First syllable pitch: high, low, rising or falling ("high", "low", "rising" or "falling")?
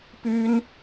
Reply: high